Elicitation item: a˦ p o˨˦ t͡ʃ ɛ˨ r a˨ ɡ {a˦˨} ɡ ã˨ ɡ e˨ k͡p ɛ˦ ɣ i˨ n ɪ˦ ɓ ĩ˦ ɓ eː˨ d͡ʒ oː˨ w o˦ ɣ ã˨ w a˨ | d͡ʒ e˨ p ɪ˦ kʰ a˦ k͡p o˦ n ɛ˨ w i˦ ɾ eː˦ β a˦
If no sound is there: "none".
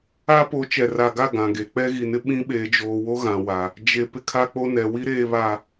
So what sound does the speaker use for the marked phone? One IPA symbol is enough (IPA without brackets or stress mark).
a˦˨